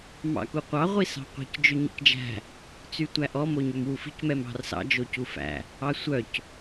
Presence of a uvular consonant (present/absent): present